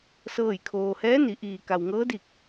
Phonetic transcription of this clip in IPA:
s ɤː˥˨ j kʰ oː˧ h ɛː˧˥ n i˩˧ ʔ iː˩ k a˩ w ŋ ɤː˧˥ d i˧˩ k̚

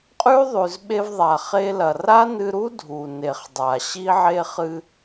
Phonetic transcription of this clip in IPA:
qʼ ʉ˦ ðˤ ʉ˨ z ɓ e˧ v ðˤ a˨ χ e˧ l ɐ˨ r a˦ n ɨ˧ ɾ u˦ dʱ u˨ n e˨ χ dˤ a˨ ɕ i˧ ʕ e˧ χ ɨ˧

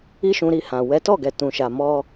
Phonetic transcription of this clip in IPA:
i˦ ʃ ũ˧ ɾ i˧ h ã˨ w ɛ˨˦ t ɔ˦˨ ɡ ɛ˨ t ũ˨ ʃ a˨ m ɔ˧

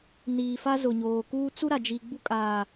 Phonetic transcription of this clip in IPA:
n iː˨ f a˦ z ʊ˨ ɲ oː˨ k uː˦ t͡s u˦ ɾ a˨ d͡ʒ i˨ ɡ͡b u˦ kʼ aː˨

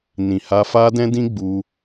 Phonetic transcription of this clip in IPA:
n ĩ˨ h a˧ f a˦ d ɛ̃˦ d ĩ˦ ɡ͡b u˧

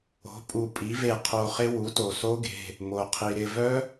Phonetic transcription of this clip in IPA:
o̤˩˥ pʼ u˩ pʼ i˩˥ v e˧˩ qʰ o˧˩ χ ɪ˦˥ w u˩˥ t o˩ s o˦˥ ɡ e̤˩˧˩ | m o˩ qʰ i˩ ɾ ɪ˧˩ v œ˦˥

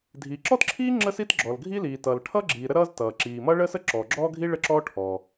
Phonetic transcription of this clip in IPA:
dʱ iː˩ ǁ ɔ˥ t ǁʰ iː˥ ŋ͡ǁ ə˥ s i˥ t ɡ͡ǁ ɔ˩ l ɡʱ i˥ l iː˩ t ʌː˩ l ʈʰ ʌ˥ ɡ͡ǁ iː˩ ɾ ə˥ ɾ ʌː˥ z t ʌː˩ ǁ iː˩ m ʌ˥ ɭ əː˥ s ə˥ ǁ ɔː˩ ɡ͡ǁ ɔː˥ ɡʱ i˥ ɭ ə˥ ǁ ɔː˥ ʈʰ ɔ˩

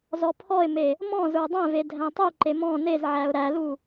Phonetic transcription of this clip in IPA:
z ɔ pʰ ɔ ɪ̯ m e | m ɔ̃ z ə˞ dˤ æ̃ v e dʱ æ̃ tˤ u ǃ e m ɔ̃ n e z ʕ æ ʊ̯ ɾ æ l u

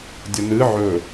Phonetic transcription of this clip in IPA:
dʲ ɵ n ɨ ʕ ɵ

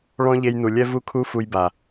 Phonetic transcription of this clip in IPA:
ɭ ɔ̃˦ ʎ e˧ j n u˨ lʲ ɛ˦ v u˦ kʰ u˦ f u˧ j b a˨

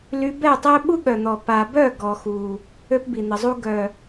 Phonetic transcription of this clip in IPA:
l y˧ b ɛ˦˨ tˤ ɛ˦ ɓ u˦ ɠ œ˨ n̪ ɔ˨ p a˨ b œ˦˨ ɡ ɔ˨ x u˨ | ø˦ p b i˨ n̪ ə˨ zˤ u˦ ɡ œ˨

